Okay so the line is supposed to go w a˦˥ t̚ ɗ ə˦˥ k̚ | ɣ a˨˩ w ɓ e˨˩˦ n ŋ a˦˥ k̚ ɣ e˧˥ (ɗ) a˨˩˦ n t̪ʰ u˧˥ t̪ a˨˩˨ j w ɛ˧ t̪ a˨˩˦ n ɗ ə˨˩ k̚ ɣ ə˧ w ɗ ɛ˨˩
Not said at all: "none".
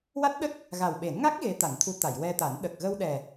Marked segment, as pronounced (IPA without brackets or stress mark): t̪